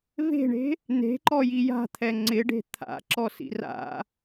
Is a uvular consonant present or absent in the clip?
absent